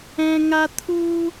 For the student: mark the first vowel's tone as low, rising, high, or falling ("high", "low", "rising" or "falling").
high